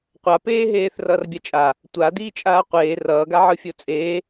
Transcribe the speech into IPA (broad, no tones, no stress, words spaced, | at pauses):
qʷapeːɦeːθ rʌːrbʲat͡ʃʼa | tʷa diːt͡ʃʼaːqʷeː rʌːɡaʕɯfʲo t͡sʼeː